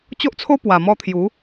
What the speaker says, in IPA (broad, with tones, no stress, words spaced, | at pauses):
t͡ɕo˦ʔt͡sʰo˦ pwa˨˩ mɔ˧ t̪ʰju˨˦